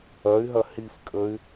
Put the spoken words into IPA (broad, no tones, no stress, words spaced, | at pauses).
ɐy̯ɦɐ hifkʼəy̯